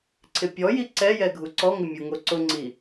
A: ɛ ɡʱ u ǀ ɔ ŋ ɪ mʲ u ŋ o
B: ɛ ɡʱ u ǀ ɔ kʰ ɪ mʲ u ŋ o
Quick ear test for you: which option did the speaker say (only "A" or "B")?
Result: A